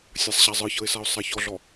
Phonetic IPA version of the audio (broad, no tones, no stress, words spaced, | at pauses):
sʲasˤɕazˤɯçɤɪ̯ saʊ̯sˤaçɔɮɔ